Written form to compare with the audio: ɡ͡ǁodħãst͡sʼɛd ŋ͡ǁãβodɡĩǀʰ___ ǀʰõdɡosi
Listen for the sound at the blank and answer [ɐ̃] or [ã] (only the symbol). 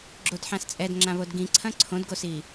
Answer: ɐ̃